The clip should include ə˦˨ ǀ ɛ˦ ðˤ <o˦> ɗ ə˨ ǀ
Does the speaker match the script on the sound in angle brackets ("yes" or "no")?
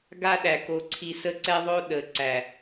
yes